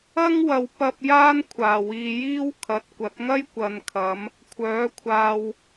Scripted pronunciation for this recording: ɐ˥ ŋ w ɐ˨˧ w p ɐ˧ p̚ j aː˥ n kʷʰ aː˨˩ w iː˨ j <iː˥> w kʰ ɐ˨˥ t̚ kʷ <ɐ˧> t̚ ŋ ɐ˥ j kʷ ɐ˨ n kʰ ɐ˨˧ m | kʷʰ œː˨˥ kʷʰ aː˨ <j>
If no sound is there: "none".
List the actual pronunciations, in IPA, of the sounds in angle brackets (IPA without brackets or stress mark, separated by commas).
iː˥, ɐ˨˥, w